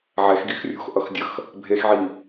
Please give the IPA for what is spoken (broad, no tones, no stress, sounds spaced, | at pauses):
ʕ ɛ x ɡ i x rʲ o̤ x ʔ ʌ x dʲ ʌ x | bʱ e x ʕ i